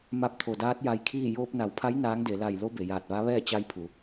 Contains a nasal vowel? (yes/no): no